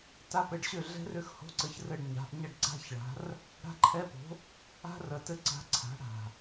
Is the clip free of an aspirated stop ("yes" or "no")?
no